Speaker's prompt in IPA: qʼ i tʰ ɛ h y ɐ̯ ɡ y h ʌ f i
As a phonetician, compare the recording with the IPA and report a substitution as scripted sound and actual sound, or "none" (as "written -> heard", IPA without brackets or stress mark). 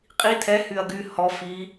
ʌ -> ɔ